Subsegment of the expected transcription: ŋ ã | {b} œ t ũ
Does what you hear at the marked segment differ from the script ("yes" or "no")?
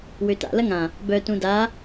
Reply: no